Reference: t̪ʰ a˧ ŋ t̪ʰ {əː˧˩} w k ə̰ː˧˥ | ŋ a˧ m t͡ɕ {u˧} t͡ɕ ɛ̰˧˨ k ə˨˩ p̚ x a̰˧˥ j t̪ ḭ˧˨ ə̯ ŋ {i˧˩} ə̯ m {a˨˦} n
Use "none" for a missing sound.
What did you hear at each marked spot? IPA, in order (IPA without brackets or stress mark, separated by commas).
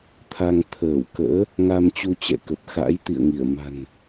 əː˧˩, u˧, i˧˩, a̤˨˩